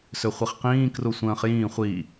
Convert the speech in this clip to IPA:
s ø χʷ i χ q ĩː k r u sʷ ə̃ː χ j ĩː χʷ i

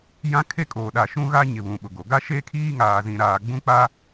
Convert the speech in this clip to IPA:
j ã˦ kʰ e˦ kʼ oː˨ ɗ a˨ ʃ ũ˦ ɣ a˦ ɲ ɪ˨ β ũ˨ ɓ ʊ˨ ɡ o˨ ɡ a˦ ʃ eː˦ kʰ iː˦ ŋ aː˨ z ĩ˨ ɾ aː˨ ɡ͡b ũ˦ k͡p a˦

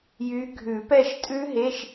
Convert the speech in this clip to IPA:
j y˨˦ ɡʱ ʉ˨˩˦ p ɛ˦˨ ʃ tʼ ʉ˦˥ ɦ e˧˥˧ ʃ

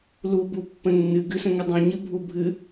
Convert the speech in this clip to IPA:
l u b u pː ə̃ nː ɨ ɡ ɨ s ə̃ ŋ ə dˤ ũ ɲ ɨ bʱ u bʱ ɨ

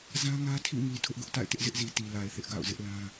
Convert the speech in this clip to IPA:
z ã˦ ŋ ä˦ tʰ ḭ˦˨ ŋ i˨ tʰ ʊ˦ ʔ ɡ ʊ˦ ʔ t a̰˦˨ ɪ̯ t ɪ˦ ʔ z ɪ˦ ʔ z i˨ t i˨ l a˨ ɪ̯ θ ɪ˦ ʔ ɡ a̰˦˨ ʊ̯ z ɪ˦ ʔ l ã˦

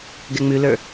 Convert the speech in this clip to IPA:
ɡ ɛ ŋ͡m ʉ l ə˞

